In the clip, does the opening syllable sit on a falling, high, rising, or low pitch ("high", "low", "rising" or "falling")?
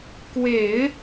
low